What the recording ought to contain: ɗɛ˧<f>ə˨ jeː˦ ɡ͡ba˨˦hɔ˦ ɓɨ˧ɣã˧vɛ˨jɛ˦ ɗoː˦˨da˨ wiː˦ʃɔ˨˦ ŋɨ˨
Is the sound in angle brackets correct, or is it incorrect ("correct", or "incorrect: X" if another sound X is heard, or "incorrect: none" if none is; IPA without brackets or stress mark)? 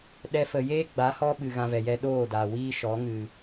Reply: correct